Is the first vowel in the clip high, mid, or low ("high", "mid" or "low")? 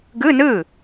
high